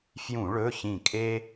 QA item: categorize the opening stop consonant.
ejective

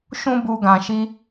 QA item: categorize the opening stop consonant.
plain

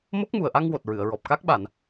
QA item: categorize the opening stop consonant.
plain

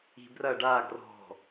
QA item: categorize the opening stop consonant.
plain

